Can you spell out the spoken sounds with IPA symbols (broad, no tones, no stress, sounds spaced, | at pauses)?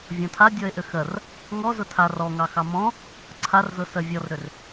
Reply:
vʲ ɔ̃ tʰ a dʲ ɔ e̯ ʔ ʏ x ɜ r | ŋ ɔ z ʊ tʰ a r ɔ ŋ ɑ x ɑ m ɔ̃ | ǀʰ a r z ʊ s ɜ vʲ ɔ r ɾ ʏ r